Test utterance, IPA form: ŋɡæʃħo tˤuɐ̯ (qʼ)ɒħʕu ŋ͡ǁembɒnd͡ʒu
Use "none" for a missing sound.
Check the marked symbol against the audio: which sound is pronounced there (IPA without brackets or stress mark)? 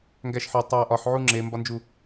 ʔ